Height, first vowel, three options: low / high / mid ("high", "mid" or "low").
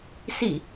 high